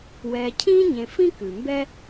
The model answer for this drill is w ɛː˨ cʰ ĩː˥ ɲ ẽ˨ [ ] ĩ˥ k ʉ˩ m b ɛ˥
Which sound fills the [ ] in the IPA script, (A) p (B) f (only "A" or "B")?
B